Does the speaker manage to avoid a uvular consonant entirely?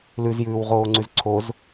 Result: no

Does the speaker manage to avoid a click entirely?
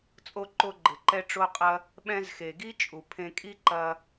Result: no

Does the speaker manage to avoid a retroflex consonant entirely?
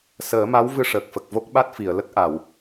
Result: no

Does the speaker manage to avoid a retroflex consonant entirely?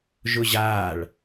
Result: no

